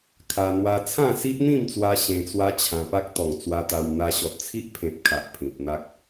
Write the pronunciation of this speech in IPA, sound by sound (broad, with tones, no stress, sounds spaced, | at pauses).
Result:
kʰ a˧ n̪ w a˧ t͡sʰ ã˥˧ s i˦ ʔ n̪ ĩ˥˧ m t͡s w a˧ ɕ ẽ˧ t͡s w a˦ t͡ɕʰ ã˧ p a˦ k̚ t̪ ɔ˨˩ ŋ t͡s w a˧ t̪ a˧ w n̪ a˧ ɕ ɔ˨ t̚ t͡sʰ i˦ ʔ pʰ ẽ˨ p̚ kʰ a˨ ʔ pʰ ĩ˨ p̚ n̪ a˦ k̚